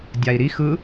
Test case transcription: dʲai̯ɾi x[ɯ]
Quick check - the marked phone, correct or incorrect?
correct